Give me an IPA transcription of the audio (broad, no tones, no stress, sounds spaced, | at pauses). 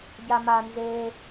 ɟ a m a n z e